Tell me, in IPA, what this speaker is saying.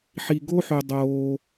ħ i˧ ɡ o˥ ħ ø˧ dˤ oː˧

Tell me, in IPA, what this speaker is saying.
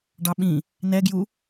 ɖ ɑ ɓ ĩ | n ɛ ɡ j u

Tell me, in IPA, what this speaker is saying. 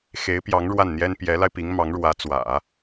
x e˧˥ ɪ̯ p j ɑ˧˥ ŋ ɻ w a˥˩ n n̪ j ɛ˥ n p j ɛ˧˥ l a˧ ɪ̯ p i˧˥ ŋ m ɑ˧˥ ŋ ɻ w ä˧˥ t͡s w ä̰˨˩˦

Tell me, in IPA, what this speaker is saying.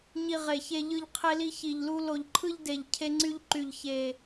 ɲ i˧ ʁ e˨˩ ç e˧ ʎ ɯ˧ ʎ qʰ e˧ l i˧ ç i˨˩ ʎ l u˧ l o˨˩ ʎ ǃʰ ɯ˧ ʎ d e˨˩ ʎ cʰ e˧ ŋ͡ǀ y˧ ʎ ǃ y˨˩ ʎ ç e˨˩

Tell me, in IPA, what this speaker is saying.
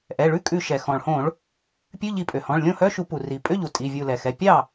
ʔ ɛ˩˧˩ ɭ ʉ˧˥˧ kʼ ʉ˧˩ ʃ ɛ˩ x ɔ̃˩ ɭ h õ˧˩˧ ɭ | pʲ ʉ˧˥˧ ʎ i˧˩ pʼ ø˩ h ɔ̃˩˧˩ ɭ lʲ õ˥˩ h œ˧˥˧ ʃ u˧˩˧ p u˩ r i˩ pʼ ø˧˥˧ ʎ u˩ tʼ i˩˧˩ vʲ u˧˩ l ɛ˩ x ɛ˩˧˩ pʲ ɑ˥˩

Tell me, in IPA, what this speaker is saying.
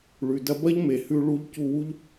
ɭ ʉ˩ d ɐ˧ b ɐ˥ ʎ m e˩ h ʉ˧ ɭ u˧ ʎ c u˧ w u˥ ʎ

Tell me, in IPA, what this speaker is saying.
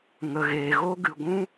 ŋ ə˨ ɣ eː˨ ɣ o˦ ɡ ɨ˨ ɡʷ ũ˦

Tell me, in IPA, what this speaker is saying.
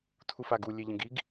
tʰ u f a ɡ u lʲ e ʎ ə̃ ɡ i ɡ

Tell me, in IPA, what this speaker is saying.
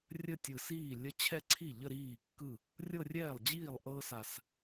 rʲ ə˥˧ tʲ ɯ˨˩ s iː˥˩ lʲ ə˥ t͡ɕʰ ɛ˥˧ ǀʰ i˥˩ ʎ ə˥˧ ɾ iː˥˩ kː ɯ˥˩ | rʲ ɤ˥˧ rʲ ɛː˥˩ lˠ d͡ʑ iː˥˩ lˠ ʔ ɤː˥ s a˨˩ s

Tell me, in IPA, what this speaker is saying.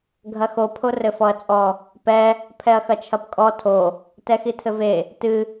ɡʱ ɐ x o pʰ o r ɘ f ɔ ɐ̯ t͡sʼ ɔ | p ɛ | pʰ ɛ ɐ̯ x ɐ t͡ʃʰ ɐ p kʼ ɔ tʰ o | t ɛ x i tʰ ɘ v e | t ɨ

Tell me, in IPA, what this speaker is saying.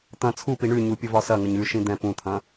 t̪ ɐ̃ t͡sʰ u p i ɳ ʉ ɲ u pʲ ə v ɒ s ɐ ŋ ə ɲ ʉ ʃ ĩ d̪ ɛ̃ p ũ t̪ʰ ɐ̃

